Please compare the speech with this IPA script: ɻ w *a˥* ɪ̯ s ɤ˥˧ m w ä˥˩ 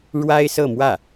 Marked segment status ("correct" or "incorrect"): correct